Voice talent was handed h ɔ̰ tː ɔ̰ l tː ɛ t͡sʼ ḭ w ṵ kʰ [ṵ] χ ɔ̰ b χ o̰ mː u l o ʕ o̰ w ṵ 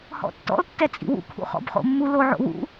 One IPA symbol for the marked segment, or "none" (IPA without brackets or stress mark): ṵ